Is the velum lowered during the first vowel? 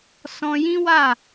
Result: yes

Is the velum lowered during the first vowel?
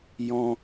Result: yes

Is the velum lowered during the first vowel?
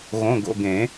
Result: yes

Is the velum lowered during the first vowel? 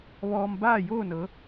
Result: no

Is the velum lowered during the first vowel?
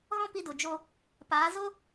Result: yes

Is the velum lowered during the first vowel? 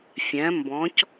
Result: yes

